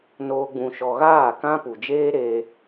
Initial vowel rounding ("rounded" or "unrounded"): rounded